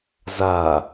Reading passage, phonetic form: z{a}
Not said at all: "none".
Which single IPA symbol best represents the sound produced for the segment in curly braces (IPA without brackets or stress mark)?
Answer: a